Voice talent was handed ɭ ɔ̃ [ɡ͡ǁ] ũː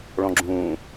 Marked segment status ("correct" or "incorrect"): correct